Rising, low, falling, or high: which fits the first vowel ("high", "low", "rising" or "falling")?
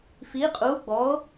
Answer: rising